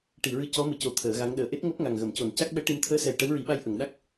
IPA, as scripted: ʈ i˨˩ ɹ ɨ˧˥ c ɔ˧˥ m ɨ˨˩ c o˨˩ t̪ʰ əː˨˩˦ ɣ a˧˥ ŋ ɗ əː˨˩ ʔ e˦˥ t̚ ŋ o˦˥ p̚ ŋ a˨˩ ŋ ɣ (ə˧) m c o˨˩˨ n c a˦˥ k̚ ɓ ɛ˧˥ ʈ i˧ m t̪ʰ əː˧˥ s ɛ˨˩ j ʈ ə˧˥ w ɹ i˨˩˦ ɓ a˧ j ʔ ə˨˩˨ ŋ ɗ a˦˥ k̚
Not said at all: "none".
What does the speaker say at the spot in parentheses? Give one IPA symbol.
ə˨˩˨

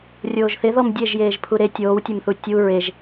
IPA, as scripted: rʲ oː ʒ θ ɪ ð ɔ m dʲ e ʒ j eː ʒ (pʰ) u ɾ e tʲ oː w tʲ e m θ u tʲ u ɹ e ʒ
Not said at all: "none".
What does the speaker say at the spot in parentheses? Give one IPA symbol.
pʰ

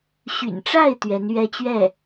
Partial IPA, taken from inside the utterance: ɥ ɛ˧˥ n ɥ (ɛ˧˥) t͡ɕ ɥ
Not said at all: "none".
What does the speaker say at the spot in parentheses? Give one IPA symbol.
ɛ˥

